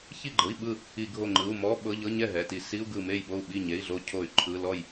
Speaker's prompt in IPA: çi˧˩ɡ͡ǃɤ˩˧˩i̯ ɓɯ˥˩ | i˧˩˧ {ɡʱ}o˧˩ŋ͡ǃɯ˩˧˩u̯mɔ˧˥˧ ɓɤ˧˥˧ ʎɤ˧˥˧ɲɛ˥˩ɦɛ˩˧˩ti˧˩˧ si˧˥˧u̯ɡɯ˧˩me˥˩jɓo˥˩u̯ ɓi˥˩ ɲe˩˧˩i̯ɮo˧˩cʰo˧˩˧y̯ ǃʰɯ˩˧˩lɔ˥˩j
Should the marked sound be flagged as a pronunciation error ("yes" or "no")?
no